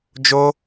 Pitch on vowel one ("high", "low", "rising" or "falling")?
high